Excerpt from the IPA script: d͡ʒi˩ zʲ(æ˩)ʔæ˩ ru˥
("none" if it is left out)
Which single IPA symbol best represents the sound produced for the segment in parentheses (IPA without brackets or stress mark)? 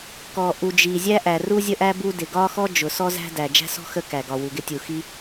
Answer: æ˥